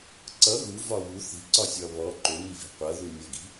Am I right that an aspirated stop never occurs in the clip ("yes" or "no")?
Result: yes